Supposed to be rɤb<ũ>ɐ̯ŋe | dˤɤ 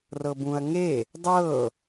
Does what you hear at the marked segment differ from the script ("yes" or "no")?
no